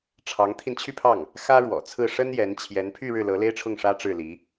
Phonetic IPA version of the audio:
ʈ͡ʂʰ ɑ˧˥ ŋ t̪ʰ i˧ n t͡ɕʰ y˥˧ pʰ ɑ˥˩ ŋ | x ä˥ ɻ w ɔ̰˨˩ t͡sʰ ɹ̩˥˩ ʂ ə˥ n j ɛ˧˥ n t͡ɕʰ j ɛ˧˥ n pʰ y˥˧ ɻ ɻ̩˥˩ l ɤ˧˥ l e˥ ɪ̯ ʈ͡ʂʰ ʊ˥˩ ŋ ʂ ä˥ ʈ͡ʂ ɻ̩˥˩ l i˧˥

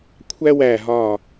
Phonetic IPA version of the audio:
kʷʰ æ˥ w æ˧˩ ɦ ɒ˧˩

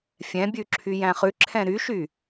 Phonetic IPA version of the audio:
fʲ ɛ̃ bʲ ʉ ǁʰ y j æ̃ χ ʉ ǁʰ ɛ̃ ɾ y ʃ y

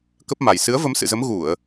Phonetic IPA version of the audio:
k ə˦˥ p̚ m a˨˩ j s ɨ˨˦ ə̯ v ə˨˦ m s ɨ̰˧˨ z ə˨˦ m ɣ u˧˩˨ ə̯

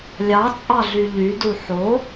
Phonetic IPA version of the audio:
lʲ ɑ t͡sʼ ɑ ɮ y ʎ y d u ħ o

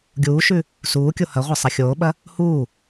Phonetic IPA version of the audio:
ɡʲ uː ʃ ʉ | s uː kʲ o h ɐ ʁʷ ɐ sˤ ɐ xʲ oː ɓ ɐ | h uː

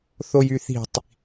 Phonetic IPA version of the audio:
θ o j y θ i̤ tˤ

